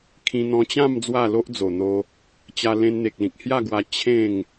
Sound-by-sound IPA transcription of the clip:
kʰ ĩ˧ n̪ ɔ̃˧ t͡ɕ ã˥˧ m d͡z w a˥˧ l o˦ ʔ d͡z o˨˩ n̪ o˧ | t͡ɕ a˧ l ẽ˧ n n̪ e˨ k̚ l ĩ˨ k̚ h j a˥˧ ɡ w a˧ t͡ɕʰ ẽ˥˧ ŋ

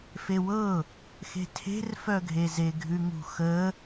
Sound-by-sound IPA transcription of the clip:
f e w ɤ | x e̤ tʰ e̤ r f œ ɡʱ e z e ɡʱ ʉ ŋ ṳ x ə

